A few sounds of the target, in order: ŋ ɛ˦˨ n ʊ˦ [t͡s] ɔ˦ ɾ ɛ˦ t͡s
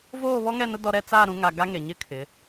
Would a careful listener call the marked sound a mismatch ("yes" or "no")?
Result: yes